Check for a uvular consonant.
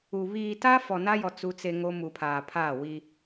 absent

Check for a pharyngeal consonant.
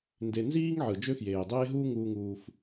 present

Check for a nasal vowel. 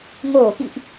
absent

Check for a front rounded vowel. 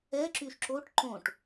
present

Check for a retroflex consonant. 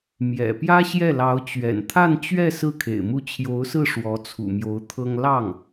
present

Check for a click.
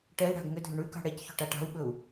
absent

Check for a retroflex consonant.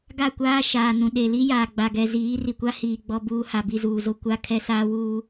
absent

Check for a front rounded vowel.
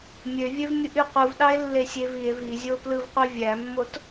present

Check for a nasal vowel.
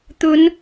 absent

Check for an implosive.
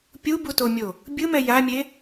absent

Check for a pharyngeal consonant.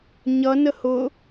absent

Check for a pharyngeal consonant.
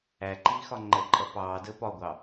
absent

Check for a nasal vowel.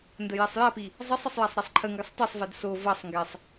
absent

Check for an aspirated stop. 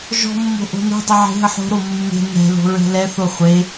absent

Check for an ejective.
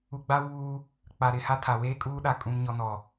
present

